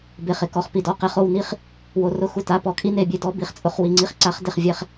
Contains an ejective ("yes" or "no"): yes